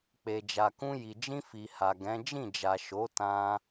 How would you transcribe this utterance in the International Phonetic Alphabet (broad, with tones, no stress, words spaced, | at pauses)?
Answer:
k͡pe˨d͡ʒa˨kũ˧ ji˨d͡ʒĩ˧ fi˨ha˨ɡɛ̃˨˦ d͡ʒĩ˦˨d͡ʒa˨ ʃo˨˦tã˧